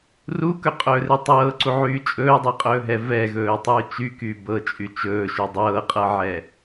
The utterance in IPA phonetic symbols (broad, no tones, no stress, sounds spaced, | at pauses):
r u k ɵ qʼ ɵː r e tˤ ɤː ǀ u ʕ yː t͡ʃʼ ɵː dˤ e qʼ ɵː ɦ ɛ v ɛ ɣ ɵː tˤ yː t͡ʃ y k yː b ɤ t͡ʃʼ y t͡ʃ ɵː ʃ y dˤ ɤː qʼ ɤ ʕ ɛ